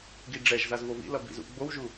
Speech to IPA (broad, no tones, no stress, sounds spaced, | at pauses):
ɡ i ɖ͡ʐ ɛ ʒ z a z v o v ḭ l ʌ b ḭ z ṵ ɡ͡b o w ʒ u